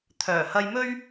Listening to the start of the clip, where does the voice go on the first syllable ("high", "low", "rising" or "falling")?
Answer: low